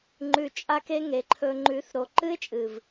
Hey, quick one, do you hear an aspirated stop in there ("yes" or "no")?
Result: yes